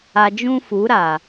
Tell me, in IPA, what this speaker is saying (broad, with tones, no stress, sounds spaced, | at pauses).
a˧ d͡ʒ ũ˦ f u˨˦ ɾ a˨